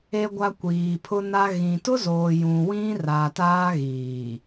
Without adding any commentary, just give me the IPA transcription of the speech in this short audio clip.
e˨ ɡʷ a˨ kʷ iː˨ pʰ ʊ˦ n a˦ ɣ ĩ˨ t ʊ˦ z oː˨ j ũ˨ w ĩ˦ r a˨ t aː˦ ɣ iː˨

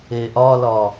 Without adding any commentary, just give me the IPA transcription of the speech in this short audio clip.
e ʔ ɒ l ɒ

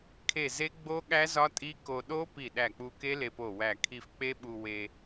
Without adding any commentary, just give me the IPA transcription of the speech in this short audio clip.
kʰ e˧˩ z e˦˥ ɡ͡b o˦˥ ɠ æ˦˥ z ɒ˦˥ tʼ i˦˥ k o˧ ɗ o˦˥ p i˧˩ ɗ æ˧˩ k͡p u˧ k e˦˥ l e˧ p o˧˩ w æ˧˩ kʰ i˧ f k͡p e˦˥ ɓ u˧ w e˧

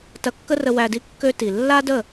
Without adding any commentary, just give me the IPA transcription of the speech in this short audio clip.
t ɐ˧ kː ə˦ r ə˧ w æ˧ d i˦ kː ø˦ t i˨ lː a˦ d ə˦˨

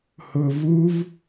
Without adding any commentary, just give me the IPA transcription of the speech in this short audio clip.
h ʊ v u v

